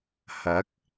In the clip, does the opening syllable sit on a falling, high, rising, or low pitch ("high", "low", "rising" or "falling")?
rising